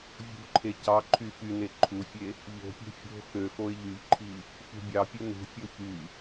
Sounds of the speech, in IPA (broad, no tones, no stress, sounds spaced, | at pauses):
vʲ ṳ ǃʰ e c ɑ ǃʰ y f y n e ǃʰ u fʲ e | ʎ o̤ pʲ e̤ fʲ o̤ x ø x o ɪ̯ ʎ y ʎ ǃʰ i | f ṳ bʲ ɑ pʲ ɯ n ṳ fʲ o ç y